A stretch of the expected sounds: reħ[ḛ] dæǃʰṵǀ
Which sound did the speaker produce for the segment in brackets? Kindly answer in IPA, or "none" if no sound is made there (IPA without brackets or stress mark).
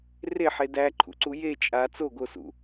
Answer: e